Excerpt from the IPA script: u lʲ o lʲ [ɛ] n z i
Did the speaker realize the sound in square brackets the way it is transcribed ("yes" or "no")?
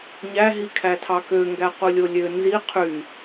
no